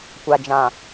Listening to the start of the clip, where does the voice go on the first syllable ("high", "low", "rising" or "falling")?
low